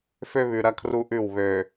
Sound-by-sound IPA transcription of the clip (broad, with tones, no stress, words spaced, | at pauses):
fø˦βʉ˨ ɾɐ˦kʰru˦ʔʉ˦˨w βø˨